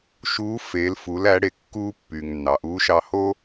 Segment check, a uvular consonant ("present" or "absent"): absent